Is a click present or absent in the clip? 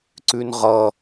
present